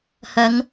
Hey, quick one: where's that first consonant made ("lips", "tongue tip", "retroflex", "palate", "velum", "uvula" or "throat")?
throat